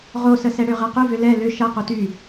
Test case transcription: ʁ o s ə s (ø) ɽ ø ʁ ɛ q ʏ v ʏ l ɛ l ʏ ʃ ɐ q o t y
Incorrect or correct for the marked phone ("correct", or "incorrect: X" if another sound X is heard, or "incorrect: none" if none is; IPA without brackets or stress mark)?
incorrect: ɛ